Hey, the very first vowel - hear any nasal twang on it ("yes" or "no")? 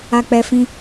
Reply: no